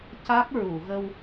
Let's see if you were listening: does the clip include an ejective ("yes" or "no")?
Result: no